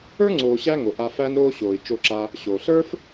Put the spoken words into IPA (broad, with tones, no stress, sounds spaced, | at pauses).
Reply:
ə˞˥ ŋ͡ǀ oː˨ ɕ æ˦ ŋ o˩ ʔ a˨ f æ˦ n ɾ oː˦ ɕ oː˩ i̯ t͡ʃ o˨ ǁ a˨ | ɕ oː˩ ɬ ə˞˥ f